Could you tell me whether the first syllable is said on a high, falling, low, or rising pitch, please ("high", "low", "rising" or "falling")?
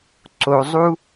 low